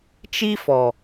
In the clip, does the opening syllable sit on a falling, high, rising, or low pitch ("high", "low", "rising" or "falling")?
high